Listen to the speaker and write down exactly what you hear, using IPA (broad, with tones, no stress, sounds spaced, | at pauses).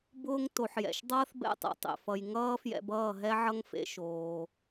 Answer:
b ʊː˧ ŋ t o˨ ħ j ɛ̰˨ ʃ dˤ ʌː˦ θ b ɛ̰˦˨ tˤ ɛ̰˧ tˤ ḛ˨ f ʌ˨ j ŋ ʌː˦ f j ɛ̰˧ b ʌː˦˨ ɦ ɛ˦ ʕ ʌ˦ ŋ f ḛ˦ ʃ oː˧